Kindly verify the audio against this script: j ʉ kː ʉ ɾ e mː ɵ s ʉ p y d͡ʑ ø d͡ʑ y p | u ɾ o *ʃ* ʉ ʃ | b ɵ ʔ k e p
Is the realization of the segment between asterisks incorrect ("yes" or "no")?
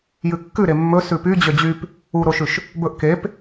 no